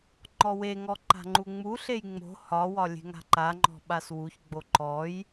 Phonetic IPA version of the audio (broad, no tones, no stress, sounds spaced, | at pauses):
ŋ͡ǃ ɔ w e ŋ ɔ ǃ a̤ ŋ͡ǃ u ŋ͡m u ɬ e j ŋ͡m o̤ h ɒ w ɒ lʲ e̤ ŋ a̤ ǃ a ŋ͡ǃ ɔ̤ ɓ a s w u ç ɡ͡b o ǃ ɔ j